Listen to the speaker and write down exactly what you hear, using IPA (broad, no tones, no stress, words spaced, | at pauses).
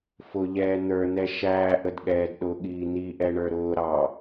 fʊʎɛː n̪ə˞n̪ɛ ʃæːʔədɠɛːd ɗʊɠiː n̪iʔɛɳə˞ ɾʊː ɾɑ